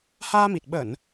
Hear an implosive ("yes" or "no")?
yes